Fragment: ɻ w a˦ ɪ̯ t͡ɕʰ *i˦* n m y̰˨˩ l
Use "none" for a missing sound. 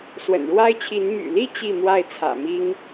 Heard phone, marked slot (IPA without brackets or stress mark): i˨˦